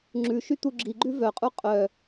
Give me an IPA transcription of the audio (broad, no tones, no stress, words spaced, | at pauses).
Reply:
ŋ͡ǁʉʃy t̪uɡ͡ǁiɡ͡ǃʉ vœqʼu qʼœ